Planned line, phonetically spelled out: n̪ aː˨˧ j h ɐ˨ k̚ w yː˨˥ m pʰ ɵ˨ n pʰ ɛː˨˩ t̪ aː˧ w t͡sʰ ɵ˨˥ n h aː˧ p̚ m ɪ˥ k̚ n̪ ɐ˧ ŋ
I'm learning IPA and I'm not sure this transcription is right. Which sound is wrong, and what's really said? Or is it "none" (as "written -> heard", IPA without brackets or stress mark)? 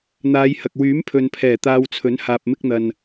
ŋ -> n